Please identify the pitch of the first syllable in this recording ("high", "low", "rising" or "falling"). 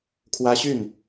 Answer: high